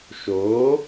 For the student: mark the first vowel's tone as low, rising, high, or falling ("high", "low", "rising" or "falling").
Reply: rising